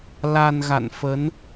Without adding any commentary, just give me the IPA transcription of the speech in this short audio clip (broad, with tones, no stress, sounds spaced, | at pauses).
l a˧ n ɣ a̰˧˨ n f ə˨˦ n